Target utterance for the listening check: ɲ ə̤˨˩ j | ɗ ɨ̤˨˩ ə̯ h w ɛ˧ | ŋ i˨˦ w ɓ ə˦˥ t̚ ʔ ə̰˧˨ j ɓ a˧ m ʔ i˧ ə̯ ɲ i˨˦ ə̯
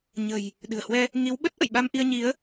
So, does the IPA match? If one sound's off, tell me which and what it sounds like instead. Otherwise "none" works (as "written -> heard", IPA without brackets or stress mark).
none